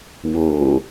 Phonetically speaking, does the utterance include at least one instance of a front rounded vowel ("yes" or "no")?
no